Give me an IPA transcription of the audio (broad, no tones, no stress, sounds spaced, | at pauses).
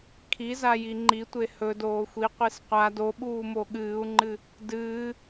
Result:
kʰ i z a j i ŋ͡ǃ i tʷ e h ɵ d oː xʷ i qʷ i s qʷ a d o ɓ uː m o ɠ ɨː u̯ ŋ͡ǃ ɨ | d ɨː